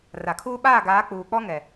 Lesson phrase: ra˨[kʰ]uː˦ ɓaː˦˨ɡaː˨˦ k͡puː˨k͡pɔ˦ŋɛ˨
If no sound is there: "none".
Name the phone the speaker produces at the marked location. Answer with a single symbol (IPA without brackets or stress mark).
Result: kʰ